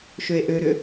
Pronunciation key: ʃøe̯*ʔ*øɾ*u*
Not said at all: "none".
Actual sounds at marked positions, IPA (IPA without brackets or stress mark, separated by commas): ʔ, ʏ